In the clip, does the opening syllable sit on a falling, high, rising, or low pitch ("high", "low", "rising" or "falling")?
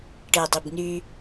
low